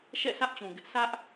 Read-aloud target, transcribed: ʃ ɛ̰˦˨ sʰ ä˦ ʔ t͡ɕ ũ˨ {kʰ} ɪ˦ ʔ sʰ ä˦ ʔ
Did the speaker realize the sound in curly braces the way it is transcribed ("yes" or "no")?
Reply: no